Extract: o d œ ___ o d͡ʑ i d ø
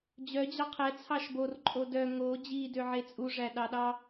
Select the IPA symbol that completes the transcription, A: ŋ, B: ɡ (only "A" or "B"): A